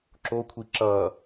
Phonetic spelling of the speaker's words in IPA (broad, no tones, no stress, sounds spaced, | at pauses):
ǁ o kʷʰ i ǁ ʌː